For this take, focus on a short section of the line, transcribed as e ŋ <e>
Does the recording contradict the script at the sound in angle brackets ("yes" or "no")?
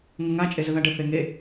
no